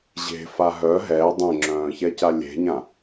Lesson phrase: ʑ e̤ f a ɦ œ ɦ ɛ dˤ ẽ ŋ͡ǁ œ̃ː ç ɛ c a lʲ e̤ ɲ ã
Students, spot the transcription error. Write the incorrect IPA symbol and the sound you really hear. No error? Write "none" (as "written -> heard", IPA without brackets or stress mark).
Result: none